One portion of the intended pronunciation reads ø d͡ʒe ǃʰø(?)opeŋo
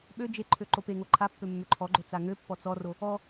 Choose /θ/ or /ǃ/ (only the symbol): ǃ